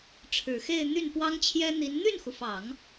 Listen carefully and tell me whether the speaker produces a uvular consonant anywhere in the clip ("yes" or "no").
no